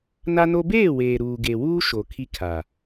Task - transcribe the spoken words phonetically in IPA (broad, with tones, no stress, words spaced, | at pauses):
na˦no˦ beː˦˨weː˨ ɾuː˨ ɡe˨wuː˦ ʃo˨ kʰi˦kʰa˨